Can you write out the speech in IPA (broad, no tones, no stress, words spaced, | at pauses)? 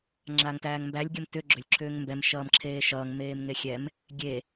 ŋ͡ǁaːŋtæːŋmbælʲ ɡʲʌmtʏ ɡ͡ǁʏlʲ ǁʰʏːŋmbɛm ʃʌːmǁʰeːʃʌːŋ meːmŋexʲɛm | ɡʲe